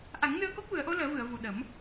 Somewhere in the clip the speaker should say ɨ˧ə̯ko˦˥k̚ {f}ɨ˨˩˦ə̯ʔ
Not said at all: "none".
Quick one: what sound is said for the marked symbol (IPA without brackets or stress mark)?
v